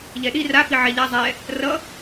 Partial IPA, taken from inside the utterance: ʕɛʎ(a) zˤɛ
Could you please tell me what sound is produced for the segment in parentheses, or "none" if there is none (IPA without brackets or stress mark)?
a